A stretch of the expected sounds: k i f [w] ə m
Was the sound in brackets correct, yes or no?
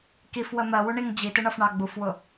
yes